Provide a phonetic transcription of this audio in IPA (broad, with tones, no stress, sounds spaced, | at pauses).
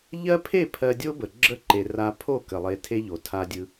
ʎ ɜ˦ pʰ e˦˨ pʰ ɜ˧ dʲ o˦ b ə˨ ɡ͡ǁ ə˦ ǃ e˨ r a˧ pʰ o˦˨ k ə˨ lˠ e˧ tʰ e˦ ʎ o˨ tʰ a˧ dʲ ɯ˧